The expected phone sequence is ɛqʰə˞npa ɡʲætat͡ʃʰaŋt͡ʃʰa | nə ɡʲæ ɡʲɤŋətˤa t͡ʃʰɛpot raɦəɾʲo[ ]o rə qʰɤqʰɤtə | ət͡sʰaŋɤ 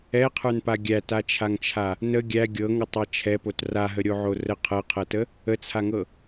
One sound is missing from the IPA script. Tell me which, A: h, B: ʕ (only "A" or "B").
B